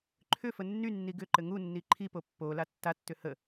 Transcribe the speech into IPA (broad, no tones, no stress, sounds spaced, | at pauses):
ǃʰ ʏ f ə nː y nː i ɡ ʏ ǃ ɘ ŋ u nː i ǃʰ i p o pː o l a tː a tː ʏ h ə